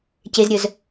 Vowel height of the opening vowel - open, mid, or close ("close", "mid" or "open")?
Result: mid